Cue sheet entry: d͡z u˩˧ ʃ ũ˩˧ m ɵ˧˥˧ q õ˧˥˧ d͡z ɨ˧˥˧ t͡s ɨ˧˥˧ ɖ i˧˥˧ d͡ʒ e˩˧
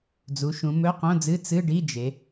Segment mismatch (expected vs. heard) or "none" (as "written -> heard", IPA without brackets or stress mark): none